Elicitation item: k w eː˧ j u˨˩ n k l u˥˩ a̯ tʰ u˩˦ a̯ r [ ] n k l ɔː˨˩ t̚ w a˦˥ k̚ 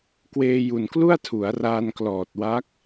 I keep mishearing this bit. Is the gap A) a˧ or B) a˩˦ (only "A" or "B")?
A